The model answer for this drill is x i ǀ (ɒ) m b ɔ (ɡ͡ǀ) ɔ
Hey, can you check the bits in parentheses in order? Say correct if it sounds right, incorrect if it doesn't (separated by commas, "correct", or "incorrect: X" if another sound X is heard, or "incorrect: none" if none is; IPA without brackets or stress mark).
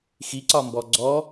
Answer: correct, correct